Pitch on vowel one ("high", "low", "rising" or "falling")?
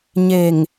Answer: low